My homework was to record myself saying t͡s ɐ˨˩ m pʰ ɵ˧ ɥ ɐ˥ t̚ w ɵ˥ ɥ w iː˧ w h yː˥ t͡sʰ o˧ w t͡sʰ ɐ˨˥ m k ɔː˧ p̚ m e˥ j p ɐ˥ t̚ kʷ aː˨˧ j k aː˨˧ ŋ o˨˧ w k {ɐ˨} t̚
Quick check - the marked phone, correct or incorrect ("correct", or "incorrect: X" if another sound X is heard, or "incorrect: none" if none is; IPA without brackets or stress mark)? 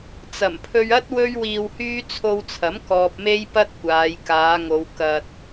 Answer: incorrect: ɐ˧